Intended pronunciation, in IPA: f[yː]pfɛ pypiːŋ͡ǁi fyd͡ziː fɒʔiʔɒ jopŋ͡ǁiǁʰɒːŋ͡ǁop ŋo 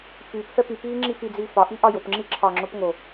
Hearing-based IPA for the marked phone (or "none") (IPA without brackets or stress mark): yː